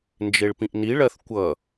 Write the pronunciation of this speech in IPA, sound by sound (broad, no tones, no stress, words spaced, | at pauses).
nd͡ʒeɭpĩʔniɭɜθ kʷʌ